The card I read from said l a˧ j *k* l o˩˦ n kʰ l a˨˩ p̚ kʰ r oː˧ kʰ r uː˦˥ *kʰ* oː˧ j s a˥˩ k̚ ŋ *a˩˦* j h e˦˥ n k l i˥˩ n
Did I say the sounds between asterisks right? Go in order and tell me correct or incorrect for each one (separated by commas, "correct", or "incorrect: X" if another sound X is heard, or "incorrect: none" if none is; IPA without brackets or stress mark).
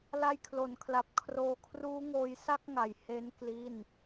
incorrect: kʰ, incorrect: ŋ, incorrect: a˨˩